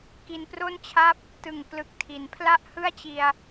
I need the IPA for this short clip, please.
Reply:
k i˧ n p r o˥˩ n t͡ɕʰ a˥˩ p̚ | t ɯ˨˩ ŋ p l ɯ˨˩ k̚ tʰ i˩˦ n pʰ l a˥˩ ʔ h ɯ˥˩ a̯ t͡ɕ i˧ a̯

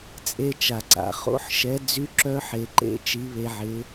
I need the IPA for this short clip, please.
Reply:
t͡sʼ e˧ t͡ʃ a˩ ǀ a̰˩ χ o̰˨˥ ħ ʃ ɛ˨˥ d͡z y˨˥ ǁ œ˧ ħ e˩ ǃ ḛ˨˥ t͡ʃ i˨˥ β e˧ ʕ ɪ˨˥

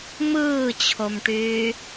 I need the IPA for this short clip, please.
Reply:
m ɯː t͡ɕʰ o m ʈ yː

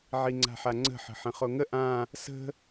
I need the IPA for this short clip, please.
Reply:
ʕ i ŋ͡ǀ a̤ ħ a ŋ͡ǀ ə̤ ħ ə̤ ħ ə̃ χ o ŋ ə ʔ ã | s ə̤

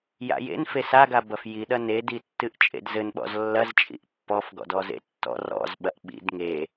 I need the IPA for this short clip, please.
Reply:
j a̰ j ḛ n f e s a ɡ a b ɐ f j i ɗ ɐ n e d i tː ɨ ʔ t͡ʃʼ ḛ d z ɘ n ɓ ɔ̰ z lː ɐ z t͡ʃʼ ḭ ʔ pː ɔ f ɡ ɔ̰ d ɔ z ḛ tː ɔ̰ r ɔ̰ z ɓ ɐ ʔ ɓ ḭ d ŋ e

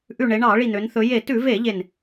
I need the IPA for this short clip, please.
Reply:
ʔ ʉ˧˩ ɳ e˩˧ ɳ ɑ˧˩˧ ɭ i˧˩ n̪ ø˩˧ n θ ɵ˩˧ j e˧˩˧ t ʉ˧˩˧ v e˧˩˧ ʎ e˧˩ n

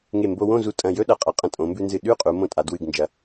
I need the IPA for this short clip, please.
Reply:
ŋ e˧˩ m b o˧ w õ˥˧ z u˧˩ tʼ ɐ̃˧˩ j ɵ˥ ɗ ɐ˩˧ qʼ ɐ˧˩ qʼ ɐ̃˧ tʼ õ˩˧ m b ʉ˧ n z ɨ˧˩ ɗ ʉ˥˧ qʼ u˩˧ m õ˧ tʼ a˩˧ d w ɨ˧˩ ɡ n d͡ʒ ɐ˩˧

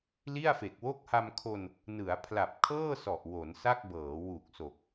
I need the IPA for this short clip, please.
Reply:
l i˥˩ a̯ f e˨˩ k̚ w o˥˩ k̚ h a˧ m kʰ o˧ n | n ɯ˩˦ a̯ pʰ l a˨˩ p̚ kʰ ɤː˥˩ s ɔ˨˩ ʔ w o˩˦ n s a˥˩ k̚ b ɤː˩˦ w u˨˩ k̚ s o˨˩ k̚

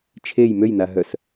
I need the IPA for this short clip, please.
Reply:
t͡ʃʰ e j m ø j n a ɦ œ s

